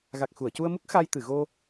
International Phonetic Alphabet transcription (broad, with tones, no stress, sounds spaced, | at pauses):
ɣ a˨˩ k̚ x u˨˩˨ ə̯ c u˧ ə̯ m u˦˥ k̚ x a˧ j t̪ ɨ˨˩˨ ɣ o˧